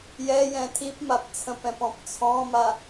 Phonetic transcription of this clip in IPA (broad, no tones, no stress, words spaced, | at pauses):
jɛjɛ̃ tʰipmap t͡sʰə̃pɛ̃p ɔ̃pt͡sʰɔ̃ma